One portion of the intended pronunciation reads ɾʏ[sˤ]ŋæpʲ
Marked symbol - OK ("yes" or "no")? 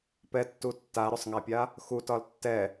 yes